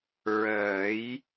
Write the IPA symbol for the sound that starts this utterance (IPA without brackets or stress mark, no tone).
ɹ